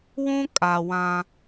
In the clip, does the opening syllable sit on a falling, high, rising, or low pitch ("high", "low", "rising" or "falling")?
high